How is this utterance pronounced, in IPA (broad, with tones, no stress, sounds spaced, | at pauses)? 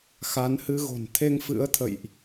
x a˨˦ n h ɨ˧ ɣ o̤˨˩ n t̪ʰ e˧ ŋ f ɨ̰˧˥ ə̯ t̪ʰ ə̰˧˨ j ʔ